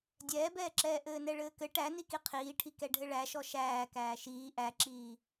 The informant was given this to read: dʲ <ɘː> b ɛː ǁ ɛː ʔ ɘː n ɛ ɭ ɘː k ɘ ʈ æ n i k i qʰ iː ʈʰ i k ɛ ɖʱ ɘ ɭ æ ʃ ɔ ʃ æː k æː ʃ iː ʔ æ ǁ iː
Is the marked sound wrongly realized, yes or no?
yes